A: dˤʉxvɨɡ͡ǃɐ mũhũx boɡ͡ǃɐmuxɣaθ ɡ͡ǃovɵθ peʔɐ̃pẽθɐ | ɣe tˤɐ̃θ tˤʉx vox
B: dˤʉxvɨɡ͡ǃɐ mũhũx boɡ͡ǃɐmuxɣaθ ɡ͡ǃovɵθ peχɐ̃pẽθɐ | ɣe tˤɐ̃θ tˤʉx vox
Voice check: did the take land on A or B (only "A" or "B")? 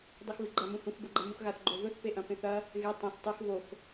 A